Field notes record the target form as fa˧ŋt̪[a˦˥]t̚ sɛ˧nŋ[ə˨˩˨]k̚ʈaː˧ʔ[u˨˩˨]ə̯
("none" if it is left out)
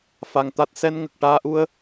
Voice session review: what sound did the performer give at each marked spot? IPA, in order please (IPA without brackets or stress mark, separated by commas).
a˦˥, ə˨˩, u˧